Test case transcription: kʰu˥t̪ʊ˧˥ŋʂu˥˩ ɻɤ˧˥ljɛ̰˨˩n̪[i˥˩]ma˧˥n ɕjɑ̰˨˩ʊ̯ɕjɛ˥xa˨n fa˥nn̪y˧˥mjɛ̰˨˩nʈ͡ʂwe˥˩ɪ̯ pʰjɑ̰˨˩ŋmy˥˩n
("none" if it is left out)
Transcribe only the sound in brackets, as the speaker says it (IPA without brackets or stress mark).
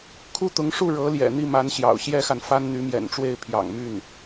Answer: i˥˩